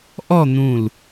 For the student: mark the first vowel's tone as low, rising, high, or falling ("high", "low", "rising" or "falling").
falling